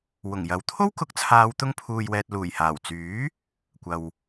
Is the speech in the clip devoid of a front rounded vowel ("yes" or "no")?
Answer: no